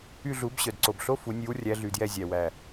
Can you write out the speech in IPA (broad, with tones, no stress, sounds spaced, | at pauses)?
y˦˨ ɮ u˨˩˦ b ɕ œ˨˩ d ǀ o˨˩ b ɬ o˧˥˧ f u˨˩˦ nʲ ʉ˨˦ w rʲ æ˨˦ ɮ y˨˩ d j ɛ˦˨ zʲ æ˨˩ w æ˨˩